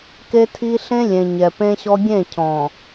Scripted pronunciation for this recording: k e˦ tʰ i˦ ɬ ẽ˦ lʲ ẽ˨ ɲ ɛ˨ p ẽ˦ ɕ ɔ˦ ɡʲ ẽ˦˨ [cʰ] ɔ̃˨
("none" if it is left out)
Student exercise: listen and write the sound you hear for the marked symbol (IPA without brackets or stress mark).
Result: cʰ